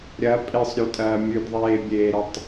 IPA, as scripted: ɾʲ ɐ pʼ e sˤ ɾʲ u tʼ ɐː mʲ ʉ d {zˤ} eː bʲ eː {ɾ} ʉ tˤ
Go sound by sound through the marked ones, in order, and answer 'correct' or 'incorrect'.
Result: incorrect, correct

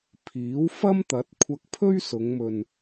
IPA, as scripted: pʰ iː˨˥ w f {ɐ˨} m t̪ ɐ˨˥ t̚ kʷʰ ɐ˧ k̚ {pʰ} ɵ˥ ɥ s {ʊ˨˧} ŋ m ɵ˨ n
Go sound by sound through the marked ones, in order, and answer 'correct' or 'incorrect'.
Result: incorrect, correct, correct

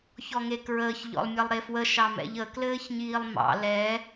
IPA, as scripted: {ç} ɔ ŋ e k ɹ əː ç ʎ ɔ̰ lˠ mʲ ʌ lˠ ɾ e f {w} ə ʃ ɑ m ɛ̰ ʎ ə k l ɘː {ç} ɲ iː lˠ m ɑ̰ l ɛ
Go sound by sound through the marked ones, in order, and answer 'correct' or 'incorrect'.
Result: correct, correct, correct

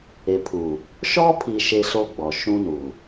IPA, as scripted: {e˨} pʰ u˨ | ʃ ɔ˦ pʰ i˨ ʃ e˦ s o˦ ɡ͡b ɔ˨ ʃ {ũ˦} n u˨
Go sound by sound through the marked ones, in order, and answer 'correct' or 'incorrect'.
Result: correct, correct

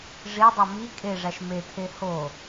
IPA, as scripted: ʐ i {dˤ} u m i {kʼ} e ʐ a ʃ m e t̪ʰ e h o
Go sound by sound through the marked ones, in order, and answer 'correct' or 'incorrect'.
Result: correct, correct

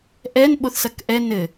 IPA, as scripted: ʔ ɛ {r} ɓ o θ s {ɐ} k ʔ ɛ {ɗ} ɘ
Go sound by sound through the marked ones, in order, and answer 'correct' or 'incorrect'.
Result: incorrect, correct, incorrect

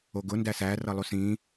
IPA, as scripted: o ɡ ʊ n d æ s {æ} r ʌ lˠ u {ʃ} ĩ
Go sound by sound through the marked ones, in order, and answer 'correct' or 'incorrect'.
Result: correct, incorrect

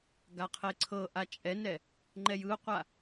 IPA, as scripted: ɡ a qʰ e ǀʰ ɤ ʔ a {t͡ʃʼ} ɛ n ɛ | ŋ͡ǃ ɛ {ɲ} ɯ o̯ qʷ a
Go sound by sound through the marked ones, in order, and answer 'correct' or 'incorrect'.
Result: correct, incorrect

